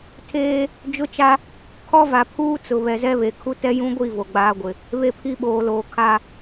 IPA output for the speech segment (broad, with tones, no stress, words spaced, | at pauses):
tʰeː˦ | d͡ʒʊ˦t͡ʃa˦ | kʰɔ˦va˨pʰuː˦t͡sʊ˨ βɛ˨zɛ˦βe˨ kʰu˦ tɛ˦jũ˦ɡʷi˦˨ vo˨ɡ͡baː˦ɡʷɪ˨ | βe˦pʰi˦ɓoː˨loː˨ kʰa˦